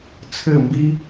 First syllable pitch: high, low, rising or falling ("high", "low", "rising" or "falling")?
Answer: falling